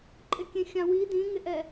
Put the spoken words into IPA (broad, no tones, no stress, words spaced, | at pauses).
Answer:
ǃʼɪkʲẽxʲãwi dĩŋɪʔɛ